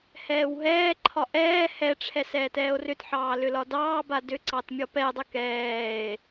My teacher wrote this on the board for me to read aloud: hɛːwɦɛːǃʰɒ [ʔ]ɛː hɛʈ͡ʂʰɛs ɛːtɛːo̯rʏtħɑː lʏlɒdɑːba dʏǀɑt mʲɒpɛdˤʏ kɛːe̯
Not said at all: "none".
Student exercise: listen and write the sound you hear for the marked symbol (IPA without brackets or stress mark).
ʔ